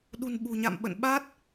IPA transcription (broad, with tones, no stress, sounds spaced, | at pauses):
ɗ ṳ˨˩ n ɓ ṳ˨˩ ɲ a̰˧˨ m ɓ ə̰˧˨ n ɓ a˦˥ t̚